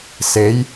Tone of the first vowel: rising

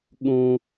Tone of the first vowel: high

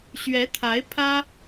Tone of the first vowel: rising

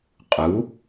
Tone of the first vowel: rising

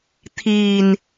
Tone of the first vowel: low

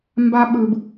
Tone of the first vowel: high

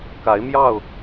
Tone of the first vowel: rising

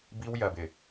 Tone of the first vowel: high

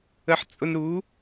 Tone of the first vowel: low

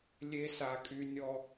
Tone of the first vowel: high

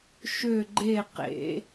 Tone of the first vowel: falling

